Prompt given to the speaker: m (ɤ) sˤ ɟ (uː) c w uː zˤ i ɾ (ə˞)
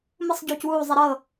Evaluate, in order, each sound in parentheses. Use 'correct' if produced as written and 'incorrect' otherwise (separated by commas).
incorrect, correct, incorrect